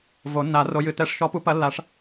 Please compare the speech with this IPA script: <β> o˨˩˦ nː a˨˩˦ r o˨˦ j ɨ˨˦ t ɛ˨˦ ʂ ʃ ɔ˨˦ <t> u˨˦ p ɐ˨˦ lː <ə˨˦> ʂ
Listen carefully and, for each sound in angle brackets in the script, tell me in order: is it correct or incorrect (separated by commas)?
incorrect, incorrect, incorrect